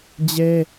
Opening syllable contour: high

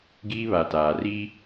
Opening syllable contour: high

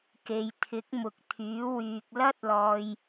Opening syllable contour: low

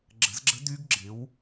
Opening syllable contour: rising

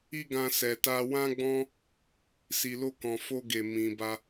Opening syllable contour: high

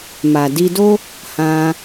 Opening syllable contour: low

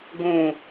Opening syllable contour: low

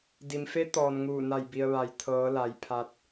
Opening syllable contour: low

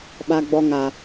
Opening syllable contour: high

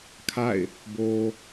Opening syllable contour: falling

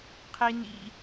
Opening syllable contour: high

